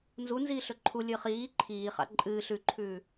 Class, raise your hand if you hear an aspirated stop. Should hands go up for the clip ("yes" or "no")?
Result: yes